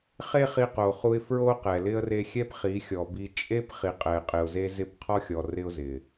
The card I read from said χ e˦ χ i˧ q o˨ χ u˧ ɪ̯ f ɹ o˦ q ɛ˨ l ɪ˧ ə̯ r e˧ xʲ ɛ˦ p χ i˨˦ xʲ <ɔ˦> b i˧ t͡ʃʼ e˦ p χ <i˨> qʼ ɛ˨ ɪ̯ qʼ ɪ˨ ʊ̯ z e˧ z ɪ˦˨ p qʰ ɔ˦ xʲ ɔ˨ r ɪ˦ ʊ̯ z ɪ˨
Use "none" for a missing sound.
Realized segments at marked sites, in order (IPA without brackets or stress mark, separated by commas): ɔ˨, i˨